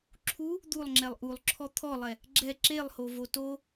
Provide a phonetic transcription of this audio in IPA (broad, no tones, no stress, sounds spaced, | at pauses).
ǁʰ u | d̪ u lˠ ŋ͡ǁ ɛ lˠ ʔ u lˠ ǁʰ ɔ t̪ʰ ɔ lˠ ɛ | ɡ͡ǁ ɛ ǁ e lˠ h o v o t o